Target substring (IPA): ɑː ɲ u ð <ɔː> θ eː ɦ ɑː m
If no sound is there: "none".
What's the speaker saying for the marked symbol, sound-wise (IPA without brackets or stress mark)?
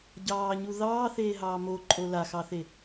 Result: ɑː